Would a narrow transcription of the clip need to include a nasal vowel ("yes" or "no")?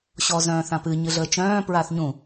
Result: yes